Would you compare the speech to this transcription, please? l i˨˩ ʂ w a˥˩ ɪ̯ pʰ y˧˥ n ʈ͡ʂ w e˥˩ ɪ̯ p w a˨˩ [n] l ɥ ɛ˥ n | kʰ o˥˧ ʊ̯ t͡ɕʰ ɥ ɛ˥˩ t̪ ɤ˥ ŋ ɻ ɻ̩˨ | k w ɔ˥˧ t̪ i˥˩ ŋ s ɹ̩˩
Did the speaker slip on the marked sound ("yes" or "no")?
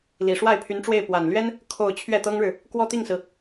no